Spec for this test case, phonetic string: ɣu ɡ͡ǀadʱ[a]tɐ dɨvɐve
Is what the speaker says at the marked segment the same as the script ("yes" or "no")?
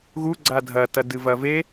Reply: no